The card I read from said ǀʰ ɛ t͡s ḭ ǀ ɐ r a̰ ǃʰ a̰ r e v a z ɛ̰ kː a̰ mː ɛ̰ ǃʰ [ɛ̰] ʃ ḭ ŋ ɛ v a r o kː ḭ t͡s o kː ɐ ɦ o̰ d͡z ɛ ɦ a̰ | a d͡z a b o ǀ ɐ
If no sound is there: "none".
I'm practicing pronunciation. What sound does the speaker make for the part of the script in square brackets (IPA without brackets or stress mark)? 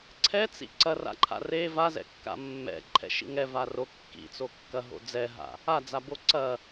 ɛ̰